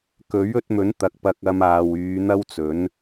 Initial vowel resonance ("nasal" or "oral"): oral